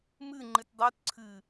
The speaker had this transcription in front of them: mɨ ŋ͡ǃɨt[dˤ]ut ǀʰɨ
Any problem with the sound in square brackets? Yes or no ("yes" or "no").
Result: no